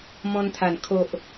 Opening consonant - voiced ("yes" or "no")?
yes